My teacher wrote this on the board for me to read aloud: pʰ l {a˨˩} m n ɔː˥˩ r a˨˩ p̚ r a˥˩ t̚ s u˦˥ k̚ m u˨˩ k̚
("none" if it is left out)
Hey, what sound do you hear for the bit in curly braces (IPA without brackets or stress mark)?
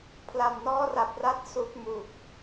a˨˩